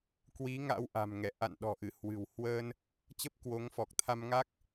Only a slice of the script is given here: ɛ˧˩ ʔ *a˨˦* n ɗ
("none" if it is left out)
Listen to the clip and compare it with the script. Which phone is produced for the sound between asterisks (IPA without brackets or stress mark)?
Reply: a̰˧˨